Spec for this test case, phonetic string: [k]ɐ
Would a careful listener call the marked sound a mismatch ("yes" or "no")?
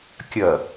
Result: yes